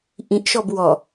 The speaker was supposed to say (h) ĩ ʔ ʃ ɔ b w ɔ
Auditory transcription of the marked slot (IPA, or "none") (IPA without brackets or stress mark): ʔ